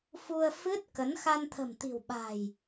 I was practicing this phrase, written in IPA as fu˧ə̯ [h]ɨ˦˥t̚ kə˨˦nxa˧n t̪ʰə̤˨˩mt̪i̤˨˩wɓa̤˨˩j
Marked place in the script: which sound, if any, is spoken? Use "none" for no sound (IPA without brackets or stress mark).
f